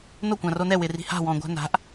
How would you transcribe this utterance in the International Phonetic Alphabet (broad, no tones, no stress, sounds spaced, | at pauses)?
n o kʷ ã r o n ɛ w ɪ r i̤ h a̤ w ɔ̃ ɡʷ a̤ n a̤ ʔ